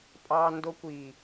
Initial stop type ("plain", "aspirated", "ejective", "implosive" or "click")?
ejective